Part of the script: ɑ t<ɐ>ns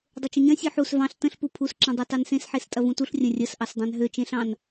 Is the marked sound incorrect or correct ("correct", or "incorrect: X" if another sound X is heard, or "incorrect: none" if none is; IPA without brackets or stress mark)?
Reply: incorrect: ɑ